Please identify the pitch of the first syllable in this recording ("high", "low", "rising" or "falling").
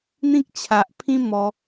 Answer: high